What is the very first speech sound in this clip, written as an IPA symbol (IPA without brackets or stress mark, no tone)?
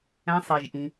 æ̃